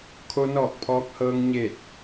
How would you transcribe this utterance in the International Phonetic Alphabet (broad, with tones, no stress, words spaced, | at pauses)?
kʰo˧nɔː˧˩k̚ pʰɔː˧k̚hɤː˧ŋ ɲe˧˩t̚